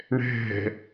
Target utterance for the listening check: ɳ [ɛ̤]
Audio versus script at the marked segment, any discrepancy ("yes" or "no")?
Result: no